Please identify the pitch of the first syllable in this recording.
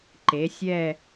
rising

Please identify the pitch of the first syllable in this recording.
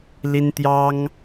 high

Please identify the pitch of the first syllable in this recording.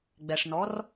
low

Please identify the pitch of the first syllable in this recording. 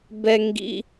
high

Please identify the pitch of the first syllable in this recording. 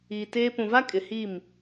low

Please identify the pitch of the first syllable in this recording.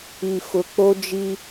low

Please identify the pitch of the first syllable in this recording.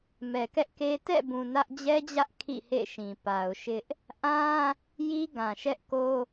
low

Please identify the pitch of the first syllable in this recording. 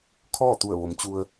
falling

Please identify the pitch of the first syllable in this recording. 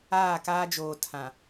falling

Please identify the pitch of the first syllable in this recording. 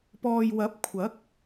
low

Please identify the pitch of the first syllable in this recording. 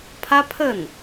high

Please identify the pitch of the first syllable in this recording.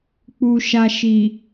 low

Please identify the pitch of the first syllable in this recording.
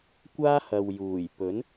high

